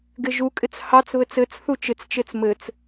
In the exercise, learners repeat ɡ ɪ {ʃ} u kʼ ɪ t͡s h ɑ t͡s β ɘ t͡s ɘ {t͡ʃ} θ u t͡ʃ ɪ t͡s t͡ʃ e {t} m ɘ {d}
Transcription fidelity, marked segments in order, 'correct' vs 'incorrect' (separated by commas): incorrect, incorrect, incorrect, incorrect